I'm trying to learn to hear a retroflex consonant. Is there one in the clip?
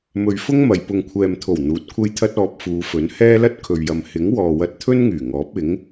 no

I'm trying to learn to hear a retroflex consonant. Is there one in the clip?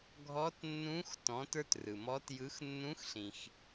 no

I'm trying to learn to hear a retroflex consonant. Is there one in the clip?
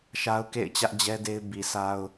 no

